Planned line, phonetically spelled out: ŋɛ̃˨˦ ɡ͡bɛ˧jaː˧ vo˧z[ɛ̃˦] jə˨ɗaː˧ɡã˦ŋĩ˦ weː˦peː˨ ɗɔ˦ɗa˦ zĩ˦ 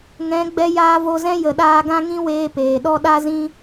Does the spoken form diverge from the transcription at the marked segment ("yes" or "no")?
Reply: no